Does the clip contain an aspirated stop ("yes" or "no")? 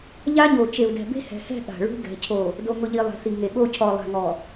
yes